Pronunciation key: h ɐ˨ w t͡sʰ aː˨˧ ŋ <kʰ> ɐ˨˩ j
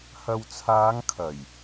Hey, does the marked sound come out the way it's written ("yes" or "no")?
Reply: yes